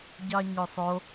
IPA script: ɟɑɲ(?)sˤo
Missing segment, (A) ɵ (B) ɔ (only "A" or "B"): A